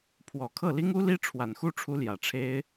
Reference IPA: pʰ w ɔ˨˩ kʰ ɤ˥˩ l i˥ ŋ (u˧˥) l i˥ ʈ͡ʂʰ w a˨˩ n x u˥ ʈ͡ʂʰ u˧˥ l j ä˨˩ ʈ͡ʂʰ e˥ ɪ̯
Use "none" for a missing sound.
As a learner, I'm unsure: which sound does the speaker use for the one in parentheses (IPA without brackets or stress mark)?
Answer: u˥